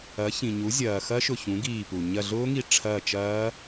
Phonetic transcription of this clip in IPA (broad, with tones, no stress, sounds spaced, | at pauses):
ɐ˩˥ ç ĩ˩ ɲ u˩˥ zʲ ɐː˩ x ɐ˦˥ ʃ ʊ˧˩ ç ũ˩˥ ɡ iː˧˩ p u˩ ɲ ɐ˧˩ ɮ ʊː˦˥ ŋ i˧˩ ʈ͡ʂʰ ɐː˧˩ t͡ʃ ɐː˦˥